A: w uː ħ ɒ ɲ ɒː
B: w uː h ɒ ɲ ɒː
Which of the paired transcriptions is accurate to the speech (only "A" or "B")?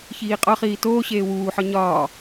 A